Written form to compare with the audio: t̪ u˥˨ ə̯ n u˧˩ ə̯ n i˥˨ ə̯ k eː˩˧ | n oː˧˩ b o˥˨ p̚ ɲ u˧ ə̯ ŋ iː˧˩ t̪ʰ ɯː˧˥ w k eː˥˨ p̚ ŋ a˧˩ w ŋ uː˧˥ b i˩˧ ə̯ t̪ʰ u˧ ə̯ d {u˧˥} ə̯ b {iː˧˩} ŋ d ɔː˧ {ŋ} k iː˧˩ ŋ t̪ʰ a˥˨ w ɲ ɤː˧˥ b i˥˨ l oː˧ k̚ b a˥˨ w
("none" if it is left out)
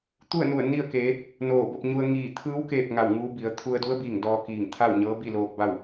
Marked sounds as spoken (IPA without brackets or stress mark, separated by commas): u˧˥, iː˧˩, none